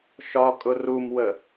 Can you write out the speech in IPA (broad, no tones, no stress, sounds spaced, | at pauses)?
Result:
ʃ ɒ kʼ ʊ r u m w ə